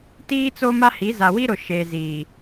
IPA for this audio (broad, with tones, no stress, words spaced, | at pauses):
tiː˦t͡so˦ma˦hi˨˦ za˨wi˦ɾʊ˨ ʃe˨ ziː˨